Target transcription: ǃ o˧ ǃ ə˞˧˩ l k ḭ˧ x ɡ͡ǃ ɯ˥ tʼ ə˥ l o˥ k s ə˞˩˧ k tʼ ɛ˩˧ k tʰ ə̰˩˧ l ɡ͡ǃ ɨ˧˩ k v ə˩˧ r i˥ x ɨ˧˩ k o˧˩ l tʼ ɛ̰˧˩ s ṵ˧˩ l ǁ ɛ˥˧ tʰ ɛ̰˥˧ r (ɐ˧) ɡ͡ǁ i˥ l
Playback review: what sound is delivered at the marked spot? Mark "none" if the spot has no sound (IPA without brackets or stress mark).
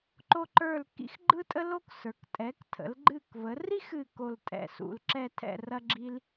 ɐ˥